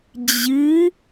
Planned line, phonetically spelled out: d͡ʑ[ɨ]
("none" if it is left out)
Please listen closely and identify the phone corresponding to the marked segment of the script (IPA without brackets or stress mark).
ɨ